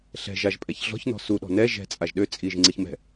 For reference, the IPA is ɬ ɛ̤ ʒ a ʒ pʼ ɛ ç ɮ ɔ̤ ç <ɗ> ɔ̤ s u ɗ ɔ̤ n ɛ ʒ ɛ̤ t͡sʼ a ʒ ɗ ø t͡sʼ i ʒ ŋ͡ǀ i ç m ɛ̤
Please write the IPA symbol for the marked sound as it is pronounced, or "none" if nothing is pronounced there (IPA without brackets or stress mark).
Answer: n